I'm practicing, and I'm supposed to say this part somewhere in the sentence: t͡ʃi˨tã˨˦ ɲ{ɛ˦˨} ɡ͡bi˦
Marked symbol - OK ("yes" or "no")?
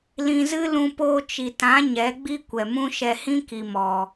no